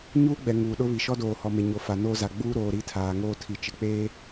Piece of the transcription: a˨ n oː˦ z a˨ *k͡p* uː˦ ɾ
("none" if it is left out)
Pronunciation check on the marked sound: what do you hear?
ɡ͡b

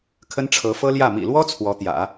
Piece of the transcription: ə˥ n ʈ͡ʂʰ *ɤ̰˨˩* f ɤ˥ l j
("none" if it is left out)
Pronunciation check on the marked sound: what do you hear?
ɤ˧˥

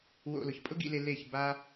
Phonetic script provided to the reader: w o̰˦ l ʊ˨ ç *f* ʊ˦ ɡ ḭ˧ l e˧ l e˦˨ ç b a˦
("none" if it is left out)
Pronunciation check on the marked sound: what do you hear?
pʼ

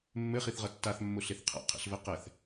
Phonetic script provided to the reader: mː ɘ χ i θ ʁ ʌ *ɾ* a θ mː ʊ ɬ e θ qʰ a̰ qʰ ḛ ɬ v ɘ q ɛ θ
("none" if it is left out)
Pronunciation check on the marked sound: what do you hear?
tː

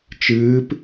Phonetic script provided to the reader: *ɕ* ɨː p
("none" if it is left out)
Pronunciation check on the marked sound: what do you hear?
t͡ʃ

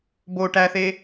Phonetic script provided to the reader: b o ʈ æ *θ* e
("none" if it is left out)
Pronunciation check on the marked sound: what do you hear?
θ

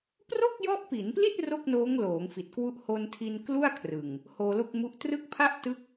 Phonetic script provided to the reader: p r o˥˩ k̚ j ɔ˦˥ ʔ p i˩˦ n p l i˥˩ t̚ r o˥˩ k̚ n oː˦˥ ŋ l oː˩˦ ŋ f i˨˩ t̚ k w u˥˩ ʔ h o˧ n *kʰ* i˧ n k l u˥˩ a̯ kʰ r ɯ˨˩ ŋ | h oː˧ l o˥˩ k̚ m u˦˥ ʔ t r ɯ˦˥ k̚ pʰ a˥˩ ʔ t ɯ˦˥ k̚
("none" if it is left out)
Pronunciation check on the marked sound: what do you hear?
tʰ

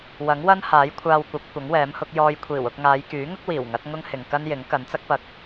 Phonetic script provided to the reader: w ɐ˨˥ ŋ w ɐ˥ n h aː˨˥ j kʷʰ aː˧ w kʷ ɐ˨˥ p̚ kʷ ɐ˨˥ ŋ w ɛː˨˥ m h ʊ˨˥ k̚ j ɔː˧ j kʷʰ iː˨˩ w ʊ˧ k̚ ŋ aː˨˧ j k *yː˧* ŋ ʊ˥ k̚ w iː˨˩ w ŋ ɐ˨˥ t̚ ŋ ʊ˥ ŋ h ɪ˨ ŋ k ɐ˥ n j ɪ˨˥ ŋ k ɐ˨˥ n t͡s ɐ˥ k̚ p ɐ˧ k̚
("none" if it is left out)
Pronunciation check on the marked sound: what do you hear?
yː˨˥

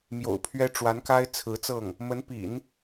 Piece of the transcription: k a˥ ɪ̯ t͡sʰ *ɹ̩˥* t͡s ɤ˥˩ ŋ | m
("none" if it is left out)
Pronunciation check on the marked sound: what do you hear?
ɹ̩˧˥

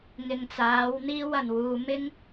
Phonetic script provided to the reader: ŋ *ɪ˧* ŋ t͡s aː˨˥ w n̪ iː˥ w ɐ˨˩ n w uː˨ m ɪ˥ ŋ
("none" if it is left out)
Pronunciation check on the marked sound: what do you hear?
ɪ˨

